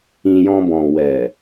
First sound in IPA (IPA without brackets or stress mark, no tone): ĩ